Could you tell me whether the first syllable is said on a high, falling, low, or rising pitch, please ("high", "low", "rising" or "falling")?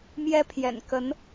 high